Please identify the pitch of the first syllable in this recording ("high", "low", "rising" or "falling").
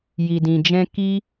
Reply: low